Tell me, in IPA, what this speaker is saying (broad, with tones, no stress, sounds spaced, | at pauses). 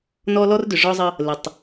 n ɔ˦ l ɔ˦ r d ʏ˨ ʐ ɔ˦ zˤ ə˦ | l ə˨ tˤ